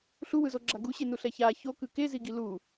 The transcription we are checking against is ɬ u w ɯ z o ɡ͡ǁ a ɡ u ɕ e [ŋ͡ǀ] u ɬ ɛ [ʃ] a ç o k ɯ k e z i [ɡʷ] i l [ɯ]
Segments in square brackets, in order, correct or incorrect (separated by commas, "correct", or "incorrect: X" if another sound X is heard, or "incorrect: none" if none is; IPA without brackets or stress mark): incorrect: n, incorrect: ç, incorrect: ɡ, incorrect: u